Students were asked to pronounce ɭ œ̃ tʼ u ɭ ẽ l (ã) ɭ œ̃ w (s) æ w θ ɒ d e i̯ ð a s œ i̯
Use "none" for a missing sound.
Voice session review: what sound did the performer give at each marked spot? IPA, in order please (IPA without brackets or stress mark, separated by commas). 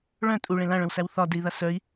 ã, s